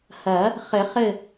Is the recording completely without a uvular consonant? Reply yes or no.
no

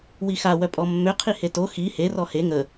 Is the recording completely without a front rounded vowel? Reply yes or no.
no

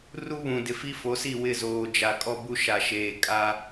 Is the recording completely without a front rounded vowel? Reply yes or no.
yes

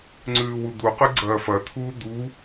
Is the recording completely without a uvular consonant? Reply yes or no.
no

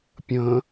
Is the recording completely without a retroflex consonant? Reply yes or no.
yes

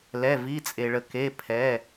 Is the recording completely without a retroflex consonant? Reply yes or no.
no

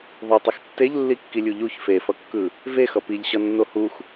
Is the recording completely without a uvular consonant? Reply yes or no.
yes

